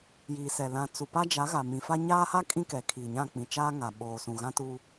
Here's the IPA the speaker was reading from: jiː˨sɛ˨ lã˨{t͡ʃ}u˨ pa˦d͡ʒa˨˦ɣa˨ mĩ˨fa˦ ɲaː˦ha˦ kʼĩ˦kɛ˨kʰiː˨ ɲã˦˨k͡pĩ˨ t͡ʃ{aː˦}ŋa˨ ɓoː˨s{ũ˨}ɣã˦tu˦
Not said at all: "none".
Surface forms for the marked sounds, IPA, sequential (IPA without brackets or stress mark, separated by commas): t͡s, aː˦, ũ˨